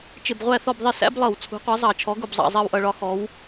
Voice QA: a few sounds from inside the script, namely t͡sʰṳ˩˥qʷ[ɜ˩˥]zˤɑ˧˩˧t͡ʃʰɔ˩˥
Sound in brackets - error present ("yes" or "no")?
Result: no